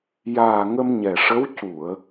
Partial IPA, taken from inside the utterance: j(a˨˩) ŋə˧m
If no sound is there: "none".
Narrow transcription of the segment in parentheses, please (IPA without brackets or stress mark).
aː˨˩